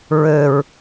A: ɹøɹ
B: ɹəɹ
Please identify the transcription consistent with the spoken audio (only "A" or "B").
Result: A